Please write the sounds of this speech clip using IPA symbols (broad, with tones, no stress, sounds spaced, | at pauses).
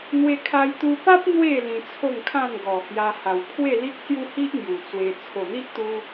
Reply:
n̪ w e˧ kʰ a˧ j t̪ u˧ p a˦ p̚ n̪ w e˥˧ l ĩ˧ t͡sʰ o˥˧ ŋ kʰ ã˥˧ n ɡ ɔ˨˩ h j a˧ h a˨˩ w pʰ w e˥˧ l i˦ k̚ s j u˦ h i˦ ʔ ŋ j u˨˩ t͡s w e˧ t͡sʰ o˨˩ n̪ i˦ ʔ t̪ u˧